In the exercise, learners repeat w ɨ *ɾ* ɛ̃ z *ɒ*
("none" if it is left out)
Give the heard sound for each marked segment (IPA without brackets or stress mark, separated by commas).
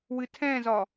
tʰ, ɒ